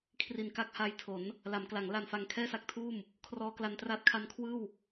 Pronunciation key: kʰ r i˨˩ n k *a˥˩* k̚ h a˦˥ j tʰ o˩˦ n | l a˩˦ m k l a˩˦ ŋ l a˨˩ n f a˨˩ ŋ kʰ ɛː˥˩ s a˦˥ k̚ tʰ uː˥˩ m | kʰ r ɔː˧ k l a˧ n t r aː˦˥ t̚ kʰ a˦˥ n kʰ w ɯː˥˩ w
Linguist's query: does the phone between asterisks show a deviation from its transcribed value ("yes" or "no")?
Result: no